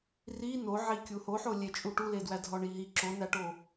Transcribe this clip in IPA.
r i n o ʕ i kʲ u h o ħ o lʲ e t͡ʃʼ u ʈ u l e d w æ dʱ ɒ ɳ i ɦ i ǁ o n æ ʈ o

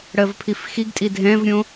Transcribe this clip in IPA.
ɽ ɜ v pʰ i f x i ɡ tʼ i dʱ ɛ̃ v ɾʲ õ

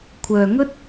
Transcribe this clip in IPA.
kʷʰ œː˨ ŋ ɵ˥ t̚

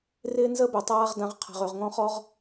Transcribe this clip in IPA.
r ɪː˧ n z əː˧ b ø˩ tˤ aː˧ ʁ d ã˩˧ ʁ qʰ a̤˩ ʁ ø˩ ʁ ŋ ɔ̃˧ χ ɔ˧ ʁ

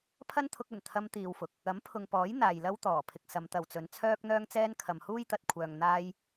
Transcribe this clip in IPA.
pʰ ɐ˥ n t̪ʰ ʊ˧ k̚ ɵ˨˩ n t̪ʰ ɐ˧ m t̪ iː˨ w f ʊ˨ k̚ | ɐ˨˥ m pʰ ʊ˨ ŋ p ɔː˨˥ j n̪ aː˨ j l ɐ˥ w t̪ ɔː˨˩ pʰ ɪ˨ k̚ s ɐ˨˧ m t̪ ɐ˨ w t͡s ɵ˨˧ n t͡sʰ œː˥ k̚ n̪ œː˥ ŋ t͡s ɛː˥ n kʰ ɐ˨ m h uː˥ j t̪ ɐ˨ t̚ kʷʰ œː˨ ŋ n̪ aː˧ j

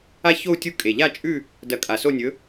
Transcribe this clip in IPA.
a˥˧ ç o˥˧ u̯ tʲ u˥˧ kʼ e˨˩ ʎ a˥˧ t͡ʃʼ ʉ˥˧ | d ɐ˨˩ kʼ a˨˩ s o˥˧ nʲ ɵ˨˥

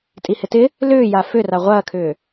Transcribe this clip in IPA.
tʼ i h ɪ t ɪ | l ʏː j a f ʏ r a ʁʷ ɐː kʰ ʏː

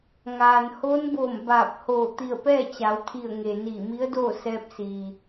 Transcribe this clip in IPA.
ŋ aː˩ n h oː˧˥ n b oː˧˩ m b aː˧˩ p̚ h oː˧˩ t̪ i˧˩ ə̯ p ɛː˥˨ t͡ɕ a˩˧ w t̪ʰ i˧˩ ə̯ ŋ e˩ n iː˧˩ m i˧˥ ə̯ d oː˥˨ s ɛː˧ p̚ s iː˩

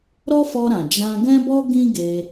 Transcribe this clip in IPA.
ɾ ɔ˦ f ɔ˧ ɾ ã˨ d͡ʒ ã˧ ɡ ɛ̃˦ b ɔ˦ ɡ ĩ˦ ɡ e˧

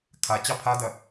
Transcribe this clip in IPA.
kʰ a t͡ɕ ɑ pʰ a d ɐ

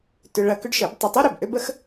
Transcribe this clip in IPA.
t ʏ˧ ɭ ɐ˧ k ʏ˥ ɖ ʃ ə˩˥ b tˤ ɪ˧ tˤ u˥ ɾ ø˩ b ʔ ø˥ b ə˥ x

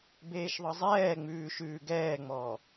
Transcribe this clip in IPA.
b eː ʃ ðˤ ɤ zˤ ɛː ŋ͡m ʉː ʃ ʉː ɡ ɛː ŋ͡m ɔː

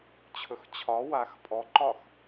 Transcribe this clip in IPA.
t͡ɕʰ ɵ x t͡ɕʰ ɒ w a x pʼ ɔ ǃ ɒ x

